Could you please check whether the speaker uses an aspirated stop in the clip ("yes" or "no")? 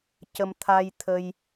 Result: yes